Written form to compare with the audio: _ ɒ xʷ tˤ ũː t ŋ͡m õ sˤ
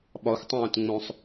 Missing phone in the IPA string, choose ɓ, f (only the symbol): ɓ